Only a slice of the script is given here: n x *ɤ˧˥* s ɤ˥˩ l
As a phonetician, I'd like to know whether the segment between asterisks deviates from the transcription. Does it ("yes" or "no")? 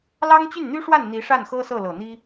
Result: yes